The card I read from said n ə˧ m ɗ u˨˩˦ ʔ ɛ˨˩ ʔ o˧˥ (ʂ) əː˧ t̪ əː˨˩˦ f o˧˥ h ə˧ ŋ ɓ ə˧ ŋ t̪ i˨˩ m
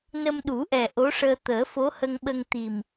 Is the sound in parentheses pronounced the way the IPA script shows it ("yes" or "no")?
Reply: yes